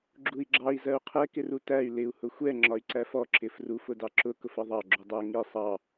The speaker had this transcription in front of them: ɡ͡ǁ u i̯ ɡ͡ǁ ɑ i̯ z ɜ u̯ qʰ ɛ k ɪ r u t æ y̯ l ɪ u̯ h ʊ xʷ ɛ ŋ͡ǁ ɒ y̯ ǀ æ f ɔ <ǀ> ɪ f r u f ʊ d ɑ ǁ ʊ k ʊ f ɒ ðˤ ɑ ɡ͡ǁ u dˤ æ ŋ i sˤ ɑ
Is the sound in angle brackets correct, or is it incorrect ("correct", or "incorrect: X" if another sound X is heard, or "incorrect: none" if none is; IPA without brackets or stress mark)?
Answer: incorrect: ǁ